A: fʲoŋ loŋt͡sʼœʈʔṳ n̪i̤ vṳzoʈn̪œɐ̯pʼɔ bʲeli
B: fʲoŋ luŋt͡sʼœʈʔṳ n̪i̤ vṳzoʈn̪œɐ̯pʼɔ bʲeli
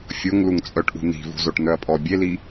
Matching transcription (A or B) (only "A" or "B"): B